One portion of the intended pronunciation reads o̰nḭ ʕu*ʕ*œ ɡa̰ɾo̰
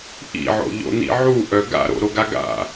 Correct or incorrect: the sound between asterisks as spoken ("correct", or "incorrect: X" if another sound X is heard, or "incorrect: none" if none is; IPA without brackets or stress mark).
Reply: incorrect: ʔ